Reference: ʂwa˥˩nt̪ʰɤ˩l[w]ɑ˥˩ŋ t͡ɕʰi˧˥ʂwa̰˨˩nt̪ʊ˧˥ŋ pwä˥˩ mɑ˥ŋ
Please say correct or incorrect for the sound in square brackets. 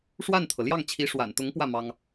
incorrect